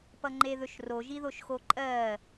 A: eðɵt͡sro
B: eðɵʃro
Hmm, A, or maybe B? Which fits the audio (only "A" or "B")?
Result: B